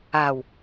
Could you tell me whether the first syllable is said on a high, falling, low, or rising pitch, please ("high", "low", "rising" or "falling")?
low